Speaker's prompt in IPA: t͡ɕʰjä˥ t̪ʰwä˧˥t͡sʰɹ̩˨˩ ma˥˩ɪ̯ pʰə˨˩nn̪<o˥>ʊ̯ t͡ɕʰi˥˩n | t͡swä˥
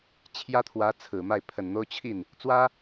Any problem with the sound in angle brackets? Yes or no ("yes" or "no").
no